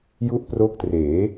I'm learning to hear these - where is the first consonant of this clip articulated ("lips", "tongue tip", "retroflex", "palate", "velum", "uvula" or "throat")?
palate